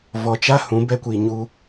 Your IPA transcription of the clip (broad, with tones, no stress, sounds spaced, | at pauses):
v ɔ˧ t͡ʃ a˦ h ũ˨˦ b ɛ˦ kʷ i˧ ɲ u˦